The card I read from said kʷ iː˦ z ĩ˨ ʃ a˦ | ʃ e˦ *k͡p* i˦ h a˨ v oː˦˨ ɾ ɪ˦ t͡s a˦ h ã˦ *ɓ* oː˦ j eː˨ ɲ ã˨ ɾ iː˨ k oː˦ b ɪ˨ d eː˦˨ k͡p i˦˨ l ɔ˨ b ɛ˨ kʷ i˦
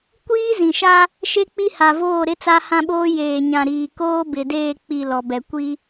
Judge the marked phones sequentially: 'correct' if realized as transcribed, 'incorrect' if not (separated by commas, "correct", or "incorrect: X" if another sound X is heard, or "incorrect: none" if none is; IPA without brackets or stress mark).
correct, correct